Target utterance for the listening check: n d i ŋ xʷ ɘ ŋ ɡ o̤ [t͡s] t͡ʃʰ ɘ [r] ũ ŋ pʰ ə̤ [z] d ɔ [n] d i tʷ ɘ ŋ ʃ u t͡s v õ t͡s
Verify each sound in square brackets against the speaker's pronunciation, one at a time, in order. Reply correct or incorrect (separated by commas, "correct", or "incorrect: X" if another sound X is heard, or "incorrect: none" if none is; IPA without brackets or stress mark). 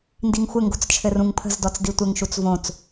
correct, correct, correct, incorrect: t͡s